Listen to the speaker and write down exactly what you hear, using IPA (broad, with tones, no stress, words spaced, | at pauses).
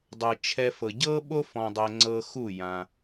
dˤɤ˨t͡ʃʰɛ˧fɤ˨ ɟɤ˦ɓo˦ fɔ̃˧dˤɛ˧ ŋ͡ǀɤ˧xu˦˨ jã˧